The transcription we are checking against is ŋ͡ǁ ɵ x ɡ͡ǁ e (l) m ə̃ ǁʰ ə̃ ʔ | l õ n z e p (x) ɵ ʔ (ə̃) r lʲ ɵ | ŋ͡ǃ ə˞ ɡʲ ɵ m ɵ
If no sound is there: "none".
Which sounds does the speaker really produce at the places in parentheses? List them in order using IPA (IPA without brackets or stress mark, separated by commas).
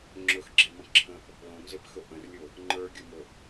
none, x, ə̃